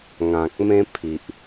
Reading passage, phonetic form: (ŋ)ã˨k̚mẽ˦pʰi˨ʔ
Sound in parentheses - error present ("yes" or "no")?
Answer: no